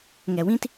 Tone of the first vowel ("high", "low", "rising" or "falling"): low